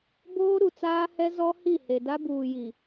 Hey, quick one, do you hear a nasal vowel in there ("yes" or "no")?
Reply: no